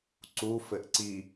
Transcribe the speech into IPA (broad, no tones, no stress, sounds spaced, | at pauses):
ǀ u f ɘ ʔ ǀ i